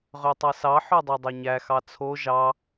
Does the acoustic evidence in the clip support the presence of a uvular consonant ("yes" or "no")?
yes